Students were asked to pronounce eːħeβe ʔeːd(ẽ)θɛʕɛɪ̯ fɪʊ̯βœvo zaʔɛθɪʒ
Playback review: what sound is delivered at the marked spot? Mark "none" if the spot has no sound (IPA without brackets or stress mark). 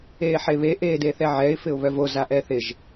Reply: e